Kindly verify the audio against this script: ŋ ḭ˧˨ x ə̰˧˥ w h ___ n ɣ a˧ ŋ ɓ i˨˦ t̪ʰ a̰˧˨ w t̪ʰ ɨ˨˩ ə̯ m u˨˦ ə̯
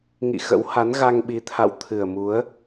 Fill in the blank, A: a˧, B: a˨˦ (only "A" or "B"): B